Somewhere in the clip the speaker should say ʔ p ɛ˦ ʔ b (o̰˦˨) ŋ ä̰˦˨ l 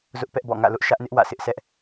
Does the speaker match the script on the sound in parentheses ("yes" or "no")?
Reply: no